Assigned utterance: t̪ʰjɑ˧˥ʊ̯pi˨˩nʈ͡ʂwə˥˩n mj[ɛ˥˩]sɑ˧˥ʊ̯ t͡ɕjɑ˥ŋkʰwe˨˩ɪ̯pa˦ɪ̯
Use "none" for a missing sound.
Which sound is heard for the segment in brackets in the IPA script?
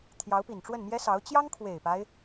ɛ˥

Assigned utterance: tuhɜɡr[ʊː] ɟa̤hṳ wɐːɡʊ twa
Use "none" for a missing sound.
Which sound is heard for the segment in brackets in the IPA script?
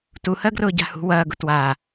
ʊː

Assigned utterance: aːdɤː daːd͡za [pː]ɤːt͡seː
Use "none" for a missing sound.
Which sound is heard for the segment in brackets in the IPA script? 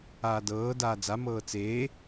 m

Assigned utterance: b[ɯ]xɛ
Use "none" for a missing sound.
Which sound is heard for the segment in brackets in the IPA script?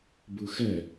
ɯ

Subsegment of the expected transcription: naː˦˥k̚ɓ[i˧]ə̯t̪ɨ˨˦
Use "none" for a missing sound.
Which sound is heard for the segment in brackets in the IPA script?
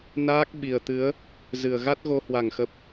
i˨˩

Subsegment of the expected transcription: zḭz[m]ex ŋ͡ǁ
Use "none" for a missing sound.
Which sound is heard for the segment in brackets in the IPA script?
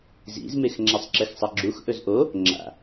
m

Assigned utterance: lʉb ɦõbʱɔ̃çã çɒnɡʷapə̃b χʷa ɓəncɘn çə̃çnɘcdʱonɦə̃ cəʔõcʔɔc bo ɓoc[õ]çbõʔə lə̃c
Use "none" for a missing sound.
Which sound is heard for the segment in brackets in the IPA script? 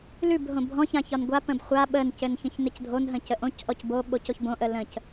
o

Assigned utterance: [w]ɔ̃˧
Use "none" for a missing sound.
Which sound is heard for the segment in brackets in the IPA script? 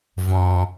v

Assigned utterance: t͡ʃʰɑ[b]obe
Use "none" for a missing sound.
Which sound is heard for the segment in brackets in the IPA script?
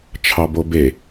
b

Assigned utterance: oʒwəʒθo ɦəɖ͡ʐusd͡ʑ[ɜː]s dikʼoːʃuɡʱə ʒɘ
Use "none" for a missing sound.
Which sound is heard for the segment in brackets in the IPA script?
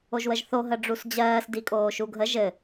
ɜː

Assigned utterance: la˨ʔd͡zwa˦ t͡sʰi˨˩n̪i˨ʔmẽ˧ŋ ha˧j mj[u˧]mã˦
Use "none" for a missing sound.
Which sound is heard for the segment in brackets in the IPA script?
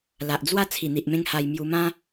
u˧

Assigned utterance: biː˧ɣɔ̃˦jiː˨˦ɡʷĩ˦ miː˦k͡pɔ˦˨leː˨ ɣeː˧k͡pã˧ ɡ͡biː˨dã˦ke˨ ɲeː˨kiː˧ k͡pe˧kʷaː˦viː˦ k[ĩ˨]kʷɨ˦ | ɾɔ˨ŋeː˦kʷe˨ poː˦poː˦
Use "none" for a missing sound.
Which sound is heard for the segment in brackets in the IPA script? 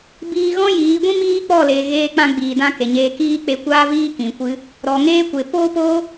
ĩ˨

